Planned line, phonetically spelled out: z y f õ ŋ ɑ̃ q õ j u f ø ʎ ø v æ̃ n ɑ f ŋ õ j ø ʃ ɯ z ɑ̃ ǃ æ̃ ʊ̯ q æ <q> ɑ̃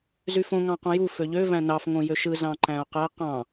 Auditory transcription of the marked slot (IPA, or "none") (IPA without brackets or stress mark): q